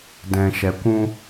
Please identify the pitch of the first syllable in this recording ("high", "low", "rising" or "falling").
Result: low